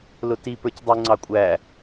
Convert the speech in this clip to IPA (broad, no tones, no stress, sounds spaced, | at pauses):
l ʊ t i p ə˞ c dˤ u ŋ͡ǀ ɑ kʷʼ æ